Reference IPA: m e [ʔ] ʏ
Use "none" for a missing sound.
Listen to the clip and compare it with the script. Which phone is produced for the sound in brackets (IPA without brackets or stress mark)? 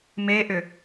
ʔ